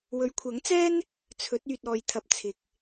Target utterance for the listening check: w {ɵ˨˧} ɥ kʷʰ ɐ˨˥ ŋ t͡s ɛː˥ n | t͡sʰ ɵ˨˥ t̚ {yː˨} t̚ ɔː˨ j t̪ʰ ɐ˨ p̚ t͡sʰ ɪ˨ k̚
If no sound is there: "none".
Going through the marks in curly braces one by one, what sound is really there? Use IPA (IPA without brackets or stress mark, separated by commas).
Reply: ɵ˨˧, yː˨